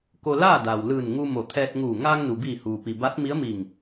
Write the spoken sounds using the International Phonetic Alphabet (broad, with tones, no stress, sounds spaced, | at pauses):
k o˧ l aː˥˨ d aː˩ w l ɯː˧˩ n ŋ u˧ m o˧˩ t̪ʰ ɛː˧ t̚ ŋ uː˧˩ ŋ aː˧ ŋ n u˩ b iː˧˩ h uː˩ p i˩ b a˧˥ t̚ m i˧˥ ə̯ m i˧˩ ŋ